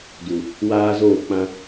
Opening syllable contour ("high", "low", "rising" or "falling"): low